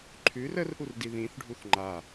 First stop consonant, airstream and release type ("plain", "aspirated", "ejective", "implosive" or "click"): click